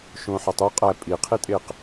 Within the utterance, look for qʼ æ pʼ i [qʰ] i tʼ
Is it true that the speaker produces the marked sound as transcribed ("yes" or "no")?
yes